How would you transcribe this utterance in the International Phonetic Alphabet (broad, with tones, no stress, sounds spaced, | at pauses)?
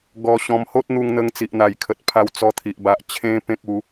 ɡ ɔ˧ ɕ ɔ̃˧ m h o˦ t̚ n̪ u˧ ŋ n̪ ə˧ ŋ t͡s i˨ ʔ n̪ a˨˩ j kʰ ə˨ t̚ pʰ a˧ w t͡s ɔ˧ t̪ʰ i˨ ʔ b a˨ ʔ t͡ɕʰ ẽ˧ p ẽ˦ k̚ u˨˦